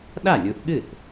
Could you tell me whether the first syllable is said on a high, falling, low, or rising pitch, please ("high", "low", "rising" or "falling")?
falling